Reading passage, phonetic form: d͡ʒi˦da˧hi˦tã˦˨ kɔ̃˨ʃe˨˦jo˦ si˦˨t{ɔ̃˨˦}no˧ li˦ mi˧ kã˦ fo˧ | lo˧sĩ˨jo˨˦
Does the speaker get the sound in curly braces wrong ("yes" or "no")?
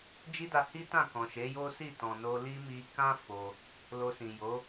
yes